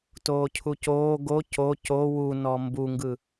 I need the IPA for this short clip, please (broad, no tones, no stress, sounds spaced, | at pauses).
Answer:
t oː cʰ u c oː ɡ o c o c o w u n ɔ m b u ŋ ɡ ɯ